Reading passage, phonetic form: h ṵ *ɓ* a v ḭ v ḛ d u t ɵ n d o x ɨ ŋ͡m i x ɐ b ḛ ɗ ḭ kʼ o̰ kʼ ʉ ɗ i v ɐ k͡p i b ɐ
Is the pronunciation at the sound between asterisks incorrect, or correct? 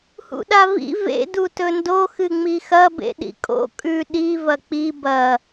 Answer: incorrect